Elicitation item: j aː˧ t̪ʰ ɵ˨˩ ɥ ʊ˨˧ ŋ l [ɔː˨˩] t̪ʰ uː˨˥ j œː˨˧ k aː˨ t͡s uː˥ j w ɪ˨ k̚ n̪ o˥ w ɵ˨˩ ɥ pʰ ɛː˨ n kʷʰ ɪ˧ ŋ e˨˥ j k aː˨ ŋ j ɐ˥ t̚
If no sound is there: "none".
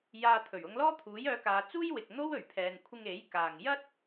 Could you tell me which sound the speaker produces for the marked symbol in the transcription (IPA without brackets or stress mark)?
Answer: ɔː˥